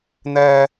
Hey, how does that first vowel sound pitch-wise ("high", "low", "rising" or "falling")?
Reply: low